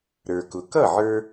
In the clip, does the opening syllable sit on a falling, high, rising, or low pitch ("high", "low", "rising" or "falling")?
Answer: low